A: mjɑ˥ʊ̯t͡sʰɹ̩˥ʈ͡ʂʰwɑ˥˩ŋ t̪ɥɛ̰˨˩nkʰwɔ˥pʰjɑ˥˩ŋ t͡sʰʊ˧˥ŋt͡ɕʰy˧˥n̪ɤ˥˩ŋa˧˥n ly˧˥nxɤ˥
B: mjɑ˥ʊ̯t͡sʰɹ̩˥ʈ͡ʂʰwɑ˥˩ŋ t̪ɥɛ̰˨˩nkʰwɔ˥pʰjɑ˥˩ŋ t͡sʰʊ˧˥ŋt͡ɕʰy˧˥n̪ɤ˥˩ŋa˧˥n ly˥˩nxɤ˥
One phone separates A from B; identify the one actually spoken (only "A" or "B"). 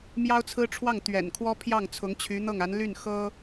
B